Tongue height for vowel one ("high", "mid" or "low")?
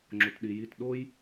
mid